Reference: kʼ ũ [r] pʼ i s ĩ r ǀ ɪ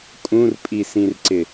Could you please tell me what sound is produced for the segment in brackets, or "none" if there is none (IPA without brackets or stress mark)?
r